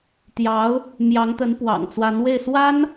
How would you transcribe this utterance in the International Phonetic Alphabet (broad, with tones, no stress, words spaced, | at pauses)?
t̪jɑ˧˥ʊ̯ | mjɑ˧˥ŋt̪ə˧˥n pwɑ̰˨˩ŋt͡swa˧˥nwe˥˩ɪ̯ swa˥n